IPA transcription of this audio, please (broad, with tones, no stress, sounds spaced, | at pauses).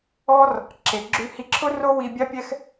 ɔ˥ r | ǁ e˩ ɡ͡ǁ ʉ˧ h i˧ ǁʰ ʊ˥ r o˥ w i˧ bʲ a˥ pʲ ɛ˥ x